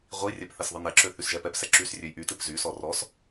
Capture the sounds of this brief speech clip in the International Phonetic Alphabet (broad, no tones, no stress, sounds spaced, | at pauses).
ʁʷ i rʲ ɛ p θ ɛ s ðˤ ɨ n ɛ ǁ ø θ y s ʒ ɛ p ɛ p s ɛ ǁ y s rʲ ø j ʔ y t ɨ p z y s ɔ r ɔ s